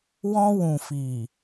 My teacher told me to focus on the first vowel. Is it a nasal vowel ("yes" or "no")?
yes